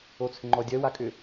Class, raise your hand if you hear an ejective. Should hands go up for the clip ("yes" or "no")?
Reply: yes